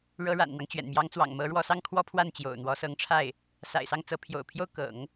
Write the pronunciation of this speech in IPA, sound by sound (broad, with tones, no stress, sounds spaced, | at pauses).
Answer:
ɻ ɤ˧˥ ɻ a̰˨˩ n n̪ ɑ˦ ŋ t͡ɕ ɥ ɛ̰˨˩ n m j ɑ˧˥ ŋ t͡s w ɑ̰˨˩ ŋ m ɤ˧˥ ɻ w ɔ˧˥ s ɑ˥ ŋ kʰ w ɔ˥ pʰ w a˥˩ n t͡ɕ j o̰˨˩ ʊ̯ n̪ w ɔ˧˥ s ɤ˧˥ ŋ ʈ͡ʂʰ a˥˩ ɪ̯ | s a̰˨˩ ɪ̯ s ɑ˥˩ ŋ t͡s ɤ˧˥ pʰ j o̰˨˩ ʊ̯ pʰ j o˥˩ ʊ̯ k ɤ̰˨˩˦ ŋ